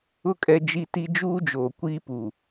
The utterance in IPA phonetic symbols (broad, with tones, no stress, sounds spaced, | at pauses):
ʊ˦ kʼ ɛ˦ d͡ʒ i˦ t i˦ d͡ʒ uː˦ d͡ʒ oː˨ kʷ iː˦ p u˨